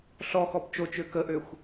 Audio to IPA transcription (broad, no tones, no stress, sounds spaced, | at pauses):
ɬ ɔ x ɔ p t͡ʃ o t͡ʃ ø k ə ʔ ø xʷ